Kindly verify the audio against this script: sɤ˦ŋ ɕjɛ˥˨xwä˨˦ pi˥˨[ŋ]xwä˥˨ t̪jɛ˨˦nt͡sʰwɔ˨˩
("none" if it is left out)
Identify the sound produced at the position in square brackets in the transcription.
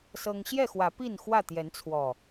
n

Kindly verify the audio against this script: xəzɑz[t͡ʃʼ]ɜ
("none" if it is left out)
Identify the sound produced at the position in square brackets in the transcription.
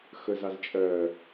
t͡ʃʼ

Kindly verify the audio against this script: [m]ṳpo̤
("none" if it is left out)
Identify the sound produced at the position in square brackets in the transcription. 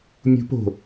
mʲ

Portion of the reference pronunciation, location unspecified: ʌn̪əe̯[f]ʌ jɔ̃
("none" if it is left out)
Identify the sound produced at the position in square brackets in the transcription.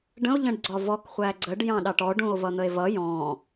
v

